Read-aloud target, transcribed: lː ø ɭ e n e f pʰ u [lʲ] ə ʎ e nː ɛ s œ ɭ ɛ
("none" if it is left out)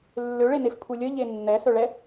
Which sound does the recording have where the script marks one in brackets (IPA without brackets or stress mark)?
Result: lʲ